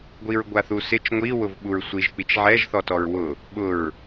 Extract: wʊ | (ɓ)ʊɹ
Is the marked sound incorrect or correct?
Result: correct